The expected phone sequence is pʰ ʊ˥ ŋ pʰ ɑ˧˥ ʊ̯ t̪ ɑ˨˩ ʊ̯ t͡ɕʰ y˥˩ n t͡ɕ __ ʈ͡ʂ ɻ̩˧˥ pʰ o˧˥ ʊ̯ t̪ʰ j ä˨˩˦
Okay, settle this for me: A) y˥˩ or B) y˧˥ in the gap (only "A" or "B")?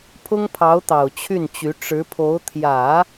B